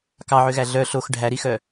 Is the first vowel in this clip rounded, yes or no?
no